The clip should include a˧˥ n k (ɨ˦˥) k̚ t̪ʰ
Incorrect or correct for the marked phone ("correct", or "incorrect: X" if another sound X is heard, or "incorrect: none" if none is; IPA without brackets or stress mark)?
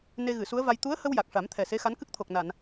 correct